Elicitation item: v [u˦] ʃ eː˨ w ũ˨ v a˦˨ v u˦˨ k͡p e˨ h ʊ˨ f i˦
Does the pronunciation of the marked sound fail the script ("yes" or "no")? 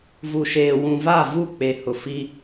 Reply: yes